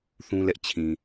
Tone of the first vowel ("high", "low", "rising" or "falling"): high